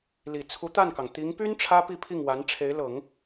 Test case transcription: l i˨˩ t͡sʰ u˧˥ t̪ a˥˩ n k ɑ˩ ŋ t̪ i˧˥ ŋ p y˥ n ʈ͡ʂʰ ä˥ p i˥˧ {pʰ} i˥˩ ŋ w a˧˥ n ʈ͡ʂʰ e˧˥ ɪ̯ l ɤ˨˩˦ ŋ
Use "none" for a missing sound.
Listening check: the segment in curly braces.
pʰ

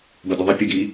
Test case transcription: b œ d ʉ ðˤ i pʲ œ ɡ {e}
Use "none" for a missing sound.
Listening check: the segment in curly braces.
i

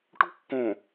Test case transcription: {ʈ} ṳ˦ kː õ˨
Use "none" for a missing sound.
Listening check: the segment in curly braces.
ʈ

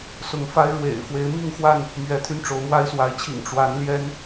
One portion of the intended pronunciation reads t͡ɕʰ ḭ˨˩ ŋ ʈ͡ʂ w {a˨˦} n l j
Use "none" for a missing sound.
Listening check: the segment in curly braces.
a˨˦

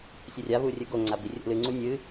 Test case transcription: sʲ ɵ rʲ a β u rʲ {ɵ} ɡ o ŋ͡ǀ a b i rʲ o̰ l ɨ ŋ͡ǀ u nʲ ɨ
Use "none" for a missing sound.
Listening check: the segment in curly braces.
ɵ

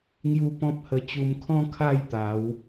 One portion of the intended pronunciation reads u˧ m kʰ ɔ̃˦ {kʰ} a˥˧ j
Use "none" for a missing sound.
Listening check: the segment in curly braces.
kʰ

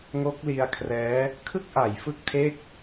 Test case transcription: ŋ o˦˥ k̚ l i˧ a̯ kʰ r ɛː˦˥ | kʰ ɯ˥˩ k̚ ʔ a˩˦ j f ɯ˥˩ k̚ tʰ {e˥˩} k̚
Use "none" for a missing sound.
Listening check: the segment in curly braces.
e˥˩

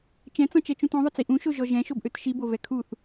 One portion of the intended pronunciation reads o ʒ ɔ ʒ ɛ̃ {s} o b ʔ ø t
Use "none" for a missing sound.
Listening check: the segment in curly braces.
ʃ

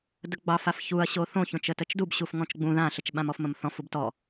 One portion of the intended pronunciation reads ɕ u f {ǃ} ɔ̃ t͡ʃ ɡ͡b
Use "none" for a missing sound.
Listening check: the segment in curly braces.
ŋ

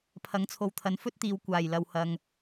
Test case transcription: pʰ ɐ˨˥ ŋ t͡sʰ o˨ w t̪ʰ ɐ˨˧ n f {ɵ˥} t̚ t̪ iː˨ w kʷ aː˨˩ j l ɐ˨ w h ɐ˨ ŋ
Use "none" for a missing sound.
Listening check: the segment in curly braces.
ɵ˥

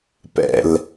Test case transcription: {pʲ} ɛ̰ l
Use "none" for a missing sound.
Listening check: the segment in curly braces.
p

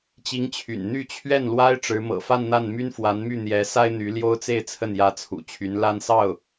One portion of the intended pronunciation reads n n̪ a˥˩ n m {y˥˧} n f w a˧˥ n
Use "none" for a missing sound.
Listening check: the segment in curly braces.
y˥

